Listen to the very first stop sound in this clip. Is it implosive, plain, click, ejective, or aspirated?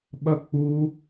implosive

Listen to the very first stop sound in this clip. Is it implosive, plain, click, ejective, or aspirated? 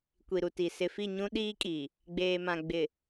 plain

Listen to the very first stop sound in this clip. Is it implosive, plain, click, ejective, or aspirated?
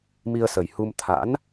aspirated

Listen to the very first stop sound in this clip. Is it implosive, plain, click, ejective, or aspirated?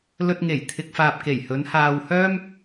plain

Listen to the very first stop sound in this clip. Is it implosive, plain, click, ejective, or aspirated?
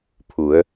aspirated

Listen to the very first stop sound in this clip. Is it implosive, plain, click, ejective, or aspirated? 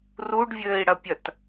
plain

